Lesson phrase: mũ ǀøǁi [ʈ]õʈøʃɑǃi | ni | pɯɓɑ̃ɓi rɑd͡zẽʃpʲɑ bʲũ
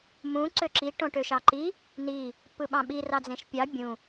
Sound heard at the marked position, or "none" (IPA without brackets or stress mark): ʈ